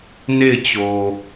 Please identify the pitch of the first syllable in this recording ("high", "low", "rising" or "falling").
falling